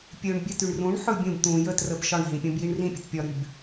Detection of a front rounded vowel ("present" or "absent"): present